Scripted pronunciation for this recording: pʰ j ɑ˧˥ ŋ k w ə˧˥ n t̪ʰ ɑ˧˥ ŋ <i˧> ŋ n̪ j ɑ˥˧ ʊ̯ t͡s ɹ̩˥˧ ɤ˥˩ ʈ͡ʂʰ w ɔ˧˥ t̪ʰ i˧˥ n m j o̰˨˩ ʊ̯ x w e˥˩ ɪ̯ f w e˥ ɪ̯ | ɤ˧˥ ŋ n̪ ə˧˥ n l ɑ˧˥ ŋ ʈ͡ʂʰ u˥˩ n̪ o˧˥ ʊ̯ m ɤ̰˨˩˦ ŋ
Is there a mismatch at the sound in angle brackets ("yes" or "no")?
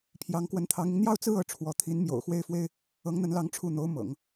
no